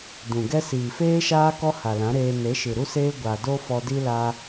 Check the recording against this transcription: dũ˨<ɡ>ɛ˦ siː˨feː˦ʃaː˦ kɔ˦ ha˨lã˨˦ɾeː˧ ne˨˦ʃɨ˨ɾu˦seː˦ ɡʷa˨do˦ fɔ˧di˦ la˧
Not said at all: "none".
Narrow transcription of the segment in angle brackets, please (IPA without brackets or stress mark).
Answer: ɡ